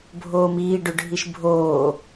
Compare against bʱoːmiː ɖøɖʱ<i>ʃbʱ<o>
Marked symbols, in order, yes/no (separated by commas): yes, no